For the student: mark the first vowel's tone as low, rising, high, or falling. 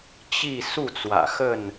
falling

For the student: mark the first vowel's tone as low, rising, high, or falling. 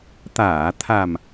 low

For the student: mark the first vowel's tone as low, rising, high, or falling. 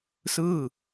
falling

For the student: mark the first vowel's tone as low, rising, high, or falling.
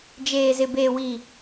low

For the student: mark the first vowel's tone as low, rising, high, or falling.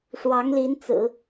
rising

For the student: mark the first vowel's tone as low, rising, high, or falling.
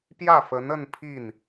falling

